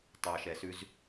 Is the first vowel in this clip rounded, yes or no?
no